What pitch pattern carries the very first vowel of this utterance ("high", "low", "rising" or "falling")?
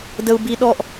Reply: high